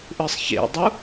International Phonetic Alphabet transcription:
ʔɯsˤçḛdˤu

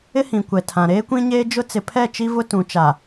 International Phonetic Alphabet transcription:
ɪ˦hĩ˨kʷɛ˨tʰã˨ ɾeː˦kʷĩ˦ɲeː˦ d͡ʒʊ˦ t͡sɪ˨pʰɛ˦˨t͡ʃi˦ vʊ˦tũ˨t͡ʃa˨

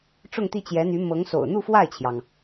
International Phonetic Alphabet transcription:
ʈ͡ʂʊ˥˧ŋt̪i˥˩t͡ɕjɛ˧˥n̪y˧˥ mɤ˧˥ŋso̰˨˩ʊ̯ n̪u˥˧fwa˥˩ɪ̯t͡ɕʰjɑ˩ŋ

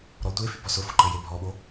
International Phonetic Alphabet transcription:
ɾɔtʷefy bɔsʊfʊǃɘ jebʱɔɓo

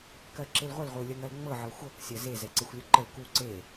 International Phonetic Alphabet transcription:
kɜǁelʁʷəl ʁʷeu̯lʲɜŋɜlŋ͡mɤ ʕɤxʷɤk sʲɜze zɛǀexʷlʲuǃəl ku ǀe

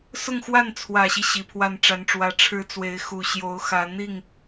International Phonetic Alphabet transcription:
sʊ˥˧ŋxwa˥˩n t͡sʰwä˨˩ɕi˦ ɕi˨˩pʰwa˥˩nʈ͡ʂa˧˥nʈ͡ʂwä˧˥ ʈ͡ʂʰɻ̩˧˥ t͡swe˧˥ɪ̯ xu˨˩ ɕjo˧˥ʊ̯xä˧˥ n̪i˥˩ŋ

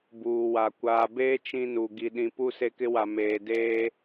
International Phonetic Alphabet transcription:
buː˨wa˨ kʷaː˨beː˦ t͡ʃĩ˦nu˨ ɡi˨ɗĩ˨ pu˦se˦kɪ˦wa˨ meː˨deː˦

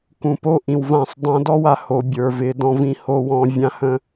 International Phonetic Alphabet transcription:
kũ˨po˦ ʔĩ˨wvã˦˨sˤ dˤã˦ dɔ˦wa˨ho˨ bʲə˞˨vɪ˨˦ dɔ̃˦vĩ˦ho˦wɔ̃˦ vʲã˦hə̃˦

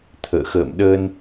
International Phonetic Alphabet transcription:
t̪ʰə̰ː˧˨ xə̰ː˧˨mɗəː˧n

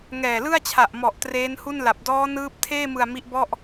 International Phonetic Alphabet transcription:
ŋɛː˨˩lɯ˥˩a̯t͡ɕʰa˨˩ʔmɔ˨˩ʔ treː˦˥nhu˥˩nla˨˩p̚ dɔː˦˥nɯː˦˥p̚tʰeː˥˩mɯ˨˩a̯ mi˦˥ʔbɔ˥˩ʔ

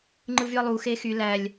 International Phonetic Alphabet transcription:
ŋ͡ǃɯvyɐ̯lˠu xexy lælʲ

